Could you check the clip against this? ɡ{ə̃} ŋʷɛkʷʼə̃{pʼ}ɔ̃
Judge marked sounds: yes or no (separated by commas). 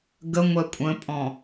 no, yes